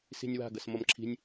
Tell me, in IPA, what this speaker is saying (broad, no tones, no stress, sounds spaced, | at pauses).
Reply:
s i̤ nʲ w a̤ ɡ ʌ s m ʌ m ǁʰ i̤ nʲ